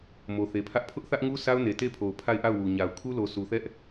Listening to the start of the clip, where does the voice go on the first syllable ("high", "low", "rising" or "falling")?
low